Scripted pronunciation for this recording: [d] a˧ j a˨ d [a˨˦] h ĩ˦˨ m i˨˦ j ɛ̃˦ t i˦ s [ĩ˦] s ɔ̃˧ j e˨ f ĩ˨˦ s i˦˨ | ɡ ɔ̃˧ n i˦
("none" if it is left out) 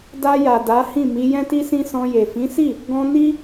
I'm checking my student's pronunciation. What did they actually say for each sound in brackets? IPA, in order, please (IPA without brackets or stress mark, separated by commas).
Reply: d, a˨˦, ĩ˦